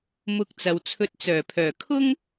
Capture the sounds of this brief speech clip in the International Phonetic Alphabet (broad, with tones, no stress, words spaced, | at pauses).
mʊ˧k̚t͡sɐ˨wt͡sʰɵ˧t̚ t͡sœː˨˩pʰœː˨˩ kʰʊ˥ŋ